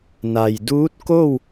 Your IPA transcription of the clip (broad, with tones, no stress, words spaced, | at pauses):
na˩jduː˧˥t̚ko˥˨w